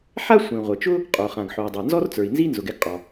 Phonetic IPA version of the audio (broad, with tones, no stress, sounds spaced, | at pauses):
ħ a˥ sʷ ĩ˩ ʁʷ ə˩ t͡ʃ ʊ˥ | qʼ o˩ χ ã˩ ɡ ħ o˩ i̯ dˤ a˩ n z ɔ˥ r t͡s ə˞˩ i̯ n z i˥ n z ʊ˩ ɡ ɛ˥ ɡ qʼ ɔ˩